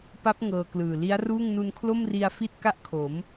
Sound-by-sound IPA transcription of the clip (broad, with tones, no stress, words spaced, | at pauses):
pa˦˥p̚ ŋɤː˧klɯː˨˩ li˦˥a̯ruː˥˩ŋ nu˧nkʰlo˥˩mri˧a̯ fi˥˩t̚ka˥˩ʔkʰo˩˦m